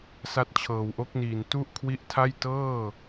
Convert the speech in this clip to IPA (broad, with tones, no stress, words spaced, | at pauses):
sa˦˥t̚t͡ɕʰɤː˨˩wʔo˦˥k̚niː˨˩n tu˥˩ʔ kʰwi˦˥ʔtʰa˥˩j tɤː˥˩